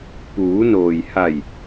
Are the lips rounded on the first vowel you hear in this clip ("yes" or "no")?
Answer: yes